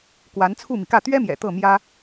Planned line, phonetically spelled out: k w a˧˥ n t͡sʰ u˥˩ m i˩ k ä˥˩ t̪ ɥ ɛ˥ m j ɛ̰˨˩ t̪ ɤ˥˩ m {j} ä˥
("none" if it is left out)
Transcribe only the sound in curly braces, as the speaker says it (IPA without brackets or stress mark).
j